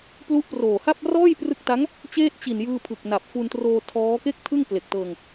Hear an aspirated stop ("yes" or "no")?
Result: yes